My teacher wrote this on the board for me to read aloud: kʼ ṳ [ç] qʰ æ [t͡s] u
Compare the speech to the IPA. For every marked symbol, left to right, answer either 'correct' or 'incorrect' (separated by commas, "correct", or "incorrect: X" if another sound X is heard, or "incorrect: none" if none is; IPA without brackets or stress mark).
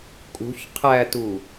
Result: correct, incorrect: t